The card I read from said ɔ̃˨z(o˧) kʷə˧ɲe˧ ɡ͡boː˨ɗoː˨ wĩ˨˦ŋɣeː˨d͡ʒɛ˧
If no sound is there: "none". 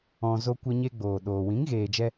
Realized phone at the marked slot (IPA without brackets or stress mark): o˧